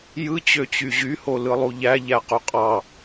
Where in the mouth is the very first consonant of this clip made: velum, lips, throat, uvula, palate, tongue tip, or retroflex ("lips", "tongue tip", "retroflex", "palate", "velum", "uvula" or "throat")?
palate